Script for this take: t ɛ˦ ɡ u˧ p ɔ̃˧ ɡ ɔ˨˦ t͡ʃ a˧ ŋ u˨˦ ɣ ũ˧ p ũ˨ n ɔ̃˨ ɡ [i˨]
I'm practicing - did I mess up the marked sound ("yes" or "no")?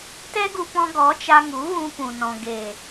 yes